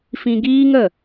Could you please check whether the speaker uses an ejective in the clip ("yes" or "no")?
no